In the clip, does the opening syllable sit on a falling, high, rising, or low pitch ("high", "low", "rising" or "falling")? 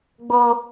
low